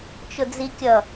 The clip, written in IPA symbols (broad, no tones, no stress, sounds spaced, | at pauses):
t͡ʃ ʊ d͡z i kʲ ʌ